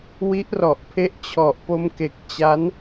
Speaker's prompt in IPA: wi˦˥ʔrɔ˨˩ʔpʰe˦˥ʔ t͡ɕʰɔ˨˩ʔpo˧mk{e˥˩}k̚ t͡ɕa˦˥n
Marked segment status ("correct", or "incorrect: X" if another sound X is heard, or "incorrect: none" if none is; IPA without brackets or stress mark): incorrect: e˨˩